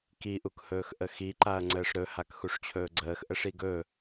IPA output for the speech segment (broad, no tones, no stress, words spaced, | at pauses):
kiʔukhɵːx ʔəxiǃaɐ̯ŋ͡ǀəːʂ ɾɵhak xuʂt͡ɕʰɵːɡ͡ǀəːx ʔəʂiɡɵ